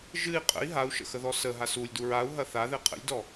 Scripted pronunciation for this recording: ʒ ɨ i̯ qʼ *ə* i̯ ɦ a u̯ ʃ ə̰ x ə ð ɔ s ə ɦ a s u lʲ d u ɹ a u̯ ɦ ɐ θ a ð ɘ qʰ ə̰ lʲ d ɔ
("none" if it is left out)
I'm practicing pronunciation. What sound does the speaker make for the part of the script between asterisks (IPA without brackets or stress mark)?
ə̰